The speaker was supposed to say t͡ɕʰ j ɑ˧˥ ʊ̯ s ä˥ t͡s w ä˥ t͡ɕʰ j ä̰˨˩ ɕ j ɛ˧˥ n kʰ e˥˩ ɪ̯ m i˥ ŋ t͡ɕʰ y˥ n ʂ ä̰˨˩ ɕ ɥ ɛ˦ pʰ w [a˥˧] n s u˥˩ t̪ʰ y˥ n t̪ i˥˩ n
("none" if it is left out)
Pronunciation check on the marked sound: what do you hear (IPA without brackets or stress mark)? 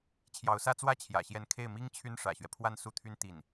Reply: a˥˧